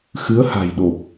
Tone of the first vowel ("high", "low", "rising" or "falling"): rising